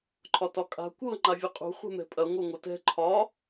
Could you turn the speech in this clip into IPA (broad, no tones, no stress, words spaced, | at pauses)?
ǃʰɒtɒkʼa̤ kʷɤ ŋ͡ǃavʲɐqʼṳ χʷɛ̤mɛ̤pʼɐ ŋʷɤŋʷɐtɛ̤ ǃʰɒ